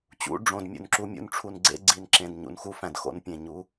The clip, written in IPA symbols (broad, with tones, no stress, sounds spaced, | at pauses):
t͡ɕ ṵ˧ ɖ͡ʐ õ˨ d mʲ ṵ˨ n ǁ u˧ mʲ ṵ˧ n ʈ͡ʂʰ u˨ n ɡ͡ǀ ḛ˦ ɡ͡ǀ i˧ n ǁ ẽ˨ d ɲ ṵ˨ n x u˦ f æ̃˨ d x o̰˧ n pʲ ẽ˨ ɲ u˨˦